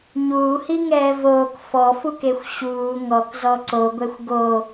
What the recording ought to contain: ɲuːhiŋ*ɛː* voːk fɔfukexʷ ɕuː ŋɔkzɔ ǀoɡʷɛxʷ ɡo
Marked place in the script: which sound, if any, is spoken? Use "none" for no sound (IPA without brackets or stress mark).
ɛː